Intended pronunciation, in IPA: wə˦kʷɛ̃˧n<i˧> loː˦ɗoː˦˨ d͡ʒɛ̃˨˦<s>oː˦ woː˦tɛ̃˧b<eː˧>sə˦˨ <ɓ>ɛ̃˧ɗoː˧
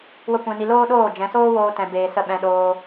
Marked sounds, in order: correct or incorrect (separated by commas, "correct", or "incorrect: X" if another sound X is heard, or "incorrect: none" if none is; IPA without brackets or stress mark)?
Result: correct, correct, correct, correct